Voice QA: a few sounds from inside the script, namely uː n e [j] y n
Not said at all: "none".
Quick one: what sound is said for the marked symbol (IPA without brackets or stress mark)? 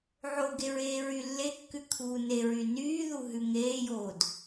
ɹ